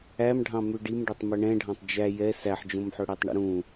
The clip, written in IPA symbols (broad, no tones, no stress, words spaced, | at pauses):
æm ɖʱɑ̃mʉɖim ɖœtˤmœɳɛ̃ɖʱɑ̃tˤ d͡ʒæ jɛ sæħd͡ʒõmħɵɽɛtˤ ɳṵɾũ